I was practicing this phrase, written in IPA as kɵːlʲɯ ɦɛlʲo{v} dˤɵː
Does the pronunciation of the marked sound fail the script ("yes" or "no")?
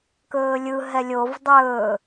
no